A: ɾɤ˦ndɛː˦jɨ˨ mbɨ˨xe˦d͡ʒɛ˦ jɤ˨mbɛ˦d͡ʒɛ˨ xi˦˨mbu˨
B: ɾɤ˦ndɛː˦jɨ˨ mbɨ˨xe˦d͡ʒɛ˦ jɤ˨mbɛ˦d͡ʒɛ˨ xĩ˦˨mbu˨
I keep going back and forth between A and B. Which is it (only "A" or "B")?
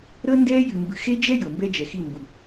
A